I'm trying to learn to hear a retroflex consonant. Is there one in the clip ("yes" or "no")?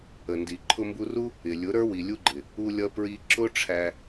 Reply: yes